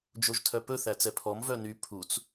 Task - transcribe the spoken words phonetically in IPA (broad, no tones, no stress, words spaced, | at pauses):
d͡ʒoʒtʰœpɵ θæt͡sɛpʰɔm vœny pʰut͡s